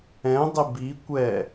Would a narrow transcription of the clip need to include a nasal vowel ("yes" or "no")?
yes